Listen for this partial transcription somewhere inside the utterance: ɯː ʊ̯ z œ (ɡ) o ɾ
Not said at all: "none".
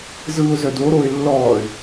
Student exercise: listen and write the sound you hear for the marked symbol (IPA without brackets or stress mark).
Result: d